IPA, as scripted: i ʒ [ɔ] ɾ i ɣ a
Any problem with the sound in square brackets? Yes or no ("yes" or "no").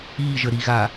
yes